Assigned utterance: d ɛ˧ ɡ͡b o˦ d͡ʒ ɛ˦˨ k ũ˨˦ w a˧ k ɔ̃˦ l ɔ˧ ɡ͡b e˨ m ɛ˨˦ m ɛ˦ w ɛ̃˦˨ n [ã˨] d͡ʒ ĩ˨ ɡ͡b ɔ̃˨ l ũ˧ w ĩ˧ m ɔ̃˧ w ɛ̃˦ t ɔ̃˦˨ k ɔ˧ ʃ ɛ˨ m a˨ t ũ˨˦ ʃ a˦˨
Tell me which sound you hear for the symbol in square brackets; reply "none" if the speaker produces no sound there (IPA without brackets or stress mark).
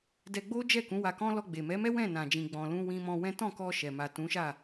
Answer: ã˨